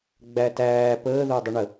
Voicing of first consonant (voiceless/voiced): voiced